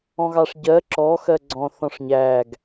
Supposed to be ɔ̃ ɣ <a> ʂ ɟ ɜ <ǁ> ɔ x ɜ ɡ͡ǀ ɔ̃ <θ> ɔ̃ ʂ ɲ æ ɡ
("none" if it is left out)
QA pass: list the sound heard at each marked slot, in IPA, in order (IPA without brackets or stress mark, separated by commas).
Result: ɑ, ǁ, θ